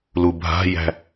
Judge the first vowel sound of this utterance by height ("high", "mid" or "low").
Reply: high